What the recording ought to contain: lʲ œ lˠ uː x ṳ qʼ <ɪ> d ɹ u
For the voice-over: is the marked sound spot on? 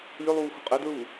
yes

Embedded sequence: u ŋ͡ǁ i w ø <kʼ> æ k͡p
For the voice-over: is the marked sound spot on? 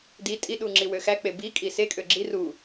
no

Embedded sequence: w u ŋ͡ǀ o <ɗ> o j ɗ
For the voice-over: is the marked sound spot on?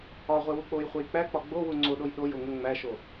yes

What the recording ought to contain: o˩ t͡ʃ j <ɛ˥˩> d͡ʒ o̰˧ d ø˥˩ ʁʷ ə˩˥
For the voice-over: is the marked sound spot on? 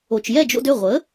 yes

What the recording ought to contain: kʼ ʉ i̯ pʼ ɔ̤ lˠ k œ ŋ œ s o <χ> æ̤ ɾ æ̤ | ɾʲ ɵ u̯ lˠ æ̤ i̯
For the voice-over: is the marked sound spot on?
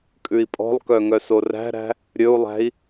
no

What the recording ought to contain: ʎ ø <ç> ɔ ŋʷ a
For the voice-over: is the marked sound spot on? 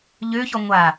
yes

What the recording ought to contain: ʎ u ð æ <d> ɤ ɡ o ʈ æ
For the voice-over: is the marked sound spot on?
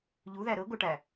no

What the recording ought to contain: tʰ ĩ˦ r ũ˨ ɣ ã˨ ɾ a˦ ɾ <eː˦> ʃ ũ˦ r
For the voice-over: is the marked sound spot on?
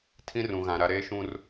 yes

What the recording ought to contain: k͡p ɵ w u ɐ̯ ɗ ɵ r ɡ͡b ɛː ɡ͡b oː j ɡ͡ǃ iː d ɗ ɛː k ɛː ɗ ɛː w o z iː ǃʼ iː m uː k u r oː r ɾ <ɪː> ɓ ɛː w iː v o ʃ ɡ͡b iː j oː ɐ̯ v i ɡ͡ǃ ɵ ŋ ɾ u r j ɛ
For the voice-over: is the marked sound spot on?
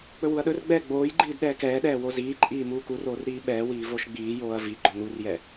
no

